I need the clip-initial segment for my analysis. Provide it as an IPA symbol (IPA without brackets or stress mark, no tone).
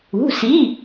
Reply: ṳ